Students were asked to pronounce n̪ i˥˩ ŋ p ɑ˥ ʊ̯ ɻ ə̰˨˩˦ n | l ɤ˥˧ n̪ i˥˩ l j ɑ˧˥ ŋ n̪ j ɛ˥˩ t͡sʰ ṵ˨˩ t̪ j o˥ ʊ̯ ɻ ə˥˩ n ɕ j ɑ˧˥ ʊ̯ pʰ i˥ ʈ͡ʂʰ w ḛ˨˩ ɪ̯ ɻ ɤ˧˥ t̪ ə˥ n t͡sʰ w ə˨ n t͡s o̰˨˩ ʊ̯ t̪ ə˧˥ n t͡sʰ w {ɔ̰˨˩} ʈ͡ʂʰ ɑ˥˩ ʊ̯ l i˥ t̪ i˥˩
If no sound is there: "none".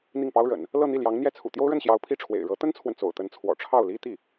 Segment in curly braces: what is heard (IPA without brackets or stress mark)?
ɔ̰˨˩